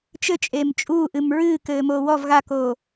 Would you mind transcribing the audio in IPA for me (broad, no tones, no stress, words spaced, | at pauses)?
t͡ʃɘt͡ʃʼeːm t͡ʃʼuːʔɨm ɹɨːkɘːmoː wɔv ɣakoː